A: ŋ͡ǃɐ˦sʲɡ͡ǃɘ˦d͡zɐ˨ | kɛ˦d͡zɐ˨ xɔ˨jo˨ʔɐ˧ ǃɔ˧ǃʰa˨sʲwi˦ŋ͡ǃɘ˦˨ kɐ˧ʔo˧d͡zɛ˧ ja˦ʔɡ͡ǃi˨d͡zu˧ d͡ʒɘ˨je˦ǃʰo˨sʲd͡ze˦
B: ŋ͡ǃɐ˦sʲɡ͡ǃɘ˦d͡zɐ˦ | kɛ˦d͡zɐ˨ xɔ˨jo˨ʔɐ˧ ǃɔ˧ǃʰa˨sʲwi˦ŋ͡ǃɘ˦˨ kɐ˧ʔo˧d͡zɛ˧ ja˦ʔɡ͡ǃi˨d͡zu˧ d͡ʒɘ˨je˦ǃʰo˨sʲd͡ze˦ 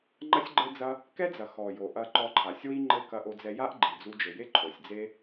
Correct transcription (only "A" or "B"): B